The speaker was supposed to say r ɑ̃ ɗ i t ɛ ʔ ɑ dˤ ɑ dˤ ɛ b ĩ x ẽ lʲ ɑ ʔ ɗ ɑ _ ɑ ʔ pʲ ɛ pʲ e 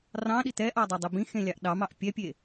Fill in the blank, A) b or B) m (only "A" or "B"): B